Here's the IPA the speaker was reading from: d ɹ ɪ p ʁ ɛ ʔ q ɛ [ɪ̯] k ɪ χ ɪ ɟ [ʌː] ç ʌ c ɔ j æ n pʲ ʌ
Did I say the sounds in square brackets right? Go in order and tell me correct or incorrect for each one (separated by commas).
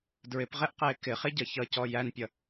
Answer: correct, incorrect